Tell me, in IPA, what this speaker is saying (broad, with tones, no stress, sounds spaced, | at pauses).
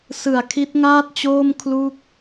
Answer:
s ɯ˨˩ a̯ kʰ i˦˥ t̚ ŋ aː˥˩ t̚ t͡ɕ oː˥˩ m kʰ l u˥˩ k̚